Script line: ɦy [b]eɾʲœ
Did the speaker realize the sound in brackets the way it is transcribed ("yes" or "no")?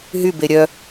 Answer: yes